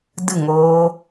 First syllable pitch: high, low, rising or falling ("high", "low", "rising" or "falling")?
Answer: falling